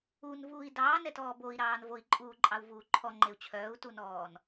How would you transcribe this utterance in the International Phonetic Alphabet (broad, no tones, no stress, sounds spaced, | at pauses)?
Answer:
u n v uː i̯ d ɑː n ɛ t ɔː b o i̯ ɾ ɑː n v o i̯ ǃʼ uː ǃʼ ɑ u̯ v uː ǃʰ ɔ ŋ͡ǃ e u̯ t͡ɕʰ œː u̯ t u n ɔː n